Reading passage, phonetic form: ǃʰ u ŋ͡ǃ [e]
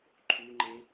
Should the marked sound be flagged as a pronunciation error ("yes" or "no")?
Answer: no